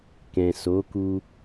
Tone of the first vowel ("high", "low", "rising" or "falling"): low